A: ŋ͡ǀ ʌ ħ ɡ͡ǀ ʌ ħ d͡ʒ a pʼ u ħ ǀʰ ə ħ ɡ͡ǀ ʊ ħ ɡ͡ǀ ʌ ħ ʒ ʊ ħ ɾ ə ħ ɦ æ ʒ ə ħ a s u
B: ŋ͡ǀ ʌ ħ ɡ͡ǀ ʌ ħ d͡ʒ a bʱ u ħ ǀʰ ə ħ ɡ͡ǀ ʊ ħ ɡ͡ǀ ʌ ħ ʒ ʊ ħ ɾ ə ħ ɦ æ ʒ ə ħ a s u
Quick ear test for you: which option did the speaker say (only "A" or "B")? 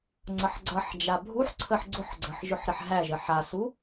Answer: B